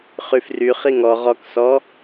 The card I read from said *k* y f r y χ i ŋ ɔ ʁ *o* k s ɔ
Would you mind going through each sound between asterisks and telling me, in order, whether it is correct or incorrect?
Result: incorrect, incorrect

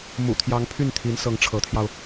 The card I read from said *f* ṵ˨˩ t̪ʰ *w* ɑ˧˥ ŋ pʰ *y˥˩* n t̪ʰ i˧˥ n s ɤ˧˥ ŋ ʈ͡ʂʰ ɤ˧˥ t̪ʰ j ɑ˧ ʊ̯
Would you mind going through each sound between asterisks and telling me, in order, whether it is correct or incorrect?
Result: incorrect, incorrect, correct

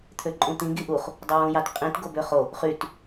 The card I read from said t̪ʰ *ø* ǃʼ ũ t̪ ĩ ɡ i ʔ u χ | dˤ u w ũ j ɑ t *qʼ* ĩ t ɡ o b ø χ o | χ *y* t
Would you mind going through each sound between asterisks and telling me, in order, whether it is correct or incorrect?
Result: correct, correct, correct

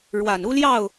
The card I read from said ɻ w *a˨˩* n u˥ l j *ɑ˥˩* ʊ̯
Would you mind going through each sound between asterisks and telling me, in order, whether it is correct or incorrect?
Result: correct, correct

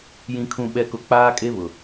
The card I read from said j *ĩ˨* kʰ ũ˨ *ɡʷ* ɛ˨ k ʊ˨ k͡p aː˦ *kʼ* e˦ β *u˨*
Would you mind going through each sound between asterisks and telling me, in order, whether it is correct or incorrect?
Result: correct, incorrect, correct, incorrect

